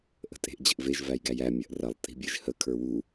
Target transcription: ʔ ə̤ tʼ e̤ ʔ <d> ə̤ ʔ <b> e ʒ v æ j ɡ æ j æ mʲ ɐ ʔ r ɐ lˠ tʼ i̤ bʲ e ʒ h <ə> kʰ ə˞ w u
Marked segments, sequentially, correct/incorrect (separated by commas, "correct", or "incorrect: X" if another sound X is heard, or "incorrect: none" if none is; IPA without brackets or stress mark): incorrect: d͡ʑ, incorrect: v, correct